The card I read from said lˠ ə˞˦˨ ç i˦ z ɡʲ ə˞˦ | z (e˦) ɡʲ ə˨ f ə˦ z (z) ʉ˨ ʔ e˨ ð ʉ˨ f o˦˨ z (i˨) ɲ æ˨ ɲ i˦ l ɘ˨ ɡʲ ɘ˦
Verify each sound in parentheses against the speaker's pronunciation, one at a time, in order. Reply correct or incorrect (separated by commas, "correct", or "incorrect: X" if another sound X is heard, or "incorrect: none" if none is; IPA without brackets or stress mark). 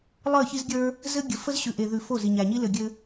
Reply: incorrect: ɘ˦, incorrect: ɕ, correct